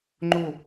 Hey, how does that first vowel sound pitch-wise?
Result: falling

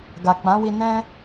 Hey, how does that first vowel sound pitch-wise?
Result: low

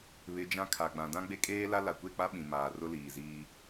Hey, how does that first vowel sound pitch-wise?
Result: rising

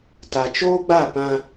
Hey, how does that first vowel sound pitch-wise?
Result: low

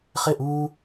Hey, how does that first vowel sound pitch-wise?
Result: falling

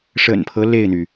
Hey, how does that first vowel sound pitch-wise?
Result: low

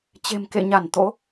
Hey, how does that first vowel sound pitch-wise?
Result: low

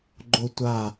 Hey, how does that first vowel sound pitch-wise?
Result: high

